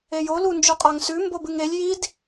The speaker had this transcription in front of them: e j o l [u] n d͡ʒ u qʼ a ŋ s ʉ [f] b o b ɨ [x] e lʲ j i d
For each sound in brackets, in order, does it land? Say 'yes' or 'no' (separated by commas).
yes, no, no